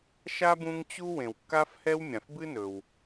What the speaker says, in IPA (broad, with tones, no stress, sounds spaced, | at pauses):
ʃ a˥ b ũ˦ ŋ t͡ɕ u˥ w ẽ˨ w kː a˥ f h ɛ˥ w mʲ ã˩ f b ɨ˥ n ɵ˩ w